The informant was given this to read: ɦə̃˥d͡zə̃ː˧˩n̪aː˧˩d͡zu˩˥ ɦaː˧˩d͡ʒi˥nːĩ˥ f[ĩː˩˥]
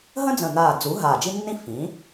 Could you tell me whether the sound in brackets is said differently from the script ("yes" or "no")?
no